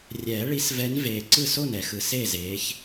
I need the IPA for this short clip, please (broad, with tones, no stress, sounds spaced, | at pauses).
rʲ ɛː˨˩˦ ɭ i˨˦ s v ɛ˨˦ n v eː˨˩ ǀ ɯ˥˩ s o˥˩ n ɛ˨˩˦ x ɯ˨˩ s e˥˩ z eː˨˦ ç